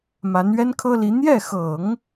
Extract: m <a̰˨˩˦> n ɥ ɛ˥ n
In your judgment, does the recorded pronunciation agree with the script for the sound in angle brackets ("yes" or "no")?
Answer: no